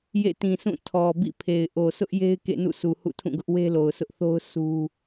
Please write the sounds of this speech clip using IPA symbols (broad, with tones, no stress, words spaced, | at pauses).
jḛ˦˨tĩ˨sʰũ˦˨ tʰɔ˨ bḭ˦˨pʰe˨ɪ̯ ʔo˨sʰʊ˦ʔje˦ɪ̯ kḛ˦˨nṵ˦˨sʰu˨ hṵ˦˨tʰũ˦˨ɡʊ˦ʔ we˦lo˨ʊ̯sʰʊ˦ʔθo˦ʊ̯ su˦